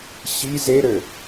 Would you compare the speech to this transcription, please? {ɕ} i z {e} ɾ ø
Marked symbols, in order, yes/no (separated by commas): yes, yes